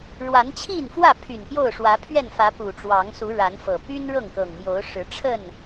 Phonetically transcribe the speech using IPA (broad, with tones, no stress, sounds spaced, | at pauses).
ɻ w a˨˦ n t͡ɕʰ i˥˨ n f w ä˥˨ pʰ y˨˩ n p j o˥˨ ʊ̯ ʂ w ä˨˦ pʰ ɥ ɛ˥˨ n f ä˨˦ p u˨˩ ʈ͡ʂ w ɑ˨˦ ŋ s u˨˦ ɻ a˨˦ n f ɤ˨˩ p y˦ n ɻ ɤ˥˨ ŋ k ɤ˨˩ ŋ m j o˨˦ ʊ̯ ʂ ɻ̩˨˦ ʈ͡ʂʰ ə˥˨ n